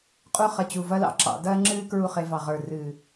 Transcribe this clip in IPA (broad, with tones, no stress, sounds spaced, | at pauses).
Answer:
qʼ u˥ χ ɐ˧ t͡ɕ u˧˩ v ɐ˥ l ɑ̰˧ ǁ ɑ̰˩˧ d ɐː˥ ŋ͡ǁ ɨː˥ k ɹ u˥˧ χ e˧ v ɑ˧˩ ʁ ə˞˧˩ r ɨː˧˩